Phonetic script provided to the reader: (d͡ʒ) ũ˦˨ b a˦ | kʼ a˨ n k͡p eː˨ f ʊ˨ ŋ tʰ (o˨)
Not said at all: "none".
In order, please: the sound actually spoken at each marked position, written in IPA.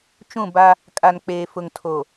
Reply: t͡ʃ, o˨

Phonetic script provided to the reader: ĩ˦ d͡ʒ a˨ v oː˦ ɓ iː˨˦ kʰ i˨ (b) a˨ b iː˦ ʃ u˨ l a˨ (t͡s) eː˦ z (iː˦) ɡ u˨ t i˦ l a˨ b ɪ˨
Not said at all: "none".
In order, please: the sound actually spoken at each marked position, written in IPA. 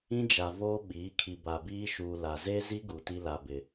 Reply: b, z, i˦

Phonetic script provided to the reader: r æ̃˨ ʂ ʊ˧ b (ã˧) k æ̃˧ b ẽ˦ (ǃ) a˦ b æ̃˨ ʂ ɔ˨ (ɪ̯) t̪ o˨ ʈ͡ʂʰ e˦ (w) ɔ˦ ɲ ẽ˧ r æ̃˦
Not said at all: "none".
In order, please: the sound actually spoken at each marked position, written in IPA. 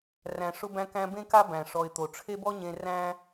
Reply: æ̃˧, k, ɪ̯, b

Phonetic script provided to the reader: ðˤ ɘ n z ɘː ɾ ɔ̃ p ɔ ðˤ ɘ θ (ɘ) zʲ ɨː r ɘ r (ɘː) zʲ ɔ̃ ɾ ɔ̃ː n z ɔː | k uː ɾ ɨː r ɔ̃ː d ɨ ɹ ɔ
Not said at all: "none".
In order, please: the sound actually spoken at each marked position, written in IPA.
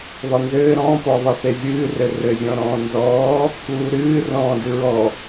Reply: e, ɘ

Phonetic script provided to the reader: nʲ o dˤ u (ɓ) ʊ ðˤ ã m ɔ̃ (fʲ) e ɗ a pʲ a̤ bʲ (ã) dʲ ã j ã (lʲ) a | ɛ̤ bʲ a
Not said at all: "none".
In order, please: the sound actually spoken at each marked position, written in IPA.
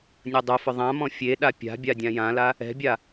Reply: f, fʲ, a, l

